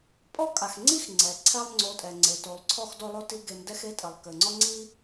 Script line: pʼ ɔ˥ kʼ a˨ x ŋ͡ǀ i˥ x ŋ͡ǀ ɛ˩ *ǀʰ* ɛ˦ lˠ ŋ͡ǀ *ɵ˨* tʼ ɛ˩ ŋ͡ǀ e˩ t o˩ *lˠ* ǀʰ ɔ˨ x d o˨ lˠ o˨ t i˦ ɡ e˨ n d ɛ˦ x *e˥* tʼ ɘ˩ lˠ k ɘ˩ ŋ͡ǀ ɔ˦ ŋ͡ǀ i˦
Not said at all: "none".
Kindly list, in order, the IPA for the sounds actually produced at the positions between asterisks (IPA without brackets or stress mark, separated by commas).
ǀʰ, o˨, lˠ, e˥